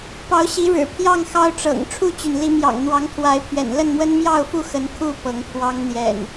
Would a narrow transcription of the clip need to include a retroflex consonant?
yes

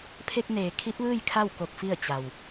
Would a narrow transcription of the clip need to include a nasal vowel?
no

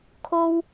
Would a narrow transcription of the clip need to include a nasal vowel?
no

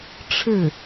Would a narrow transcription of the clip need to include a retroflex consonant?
yes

